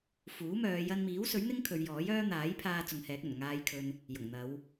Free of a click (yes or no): yes